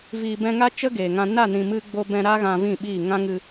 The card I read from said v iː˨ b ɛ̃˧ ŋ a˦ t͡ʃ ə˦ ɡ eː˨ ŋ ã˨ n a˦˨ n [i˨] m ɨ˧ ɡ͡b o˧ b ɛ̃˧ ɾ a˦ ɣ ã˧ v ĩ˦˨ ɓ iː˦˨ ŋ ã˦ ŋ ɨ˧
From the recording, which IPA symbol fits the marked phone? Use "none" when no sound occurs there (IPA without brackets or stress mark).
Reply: ĩ˨